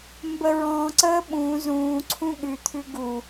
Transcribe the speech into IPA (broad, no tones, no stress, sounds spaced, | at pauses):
m b ə ɹ ɔ̃ ǀ əː ɓ ũː z ũː ǀʰ ũ ɠ ʉ t̪ʰ ʉ ɡ u